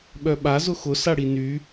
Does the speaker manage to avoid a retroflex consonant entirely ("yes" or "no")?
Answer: no